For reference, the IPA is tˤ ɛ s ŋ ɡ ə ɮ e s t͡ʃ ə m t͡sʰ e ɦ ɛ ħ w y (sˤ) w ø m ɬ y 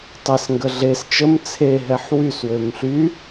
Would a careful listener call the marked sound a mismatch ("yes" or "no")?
yes